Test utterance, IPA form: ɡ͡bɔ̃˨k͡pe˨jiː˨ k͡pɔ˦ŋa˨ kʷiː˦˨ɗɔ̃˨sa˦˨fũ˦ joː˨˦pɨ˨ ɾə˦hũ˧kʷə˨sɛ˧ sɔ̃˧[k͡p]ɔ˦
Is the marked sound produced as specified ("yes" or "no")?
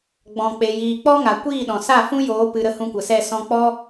yes